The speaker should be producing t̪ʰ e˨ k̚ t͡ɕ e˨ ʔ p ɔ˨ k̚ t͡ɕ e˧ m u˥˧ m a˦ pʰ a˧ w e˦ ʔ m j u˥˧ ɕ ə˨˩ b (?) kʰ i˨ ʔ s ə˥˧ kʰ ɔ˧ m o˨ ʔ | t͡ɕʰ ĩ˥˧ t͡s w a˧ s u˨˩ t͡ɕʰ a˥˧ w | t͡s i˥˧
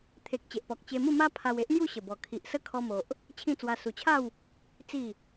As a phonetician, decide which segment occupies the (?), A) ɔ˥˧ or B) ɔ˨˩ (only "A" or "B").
B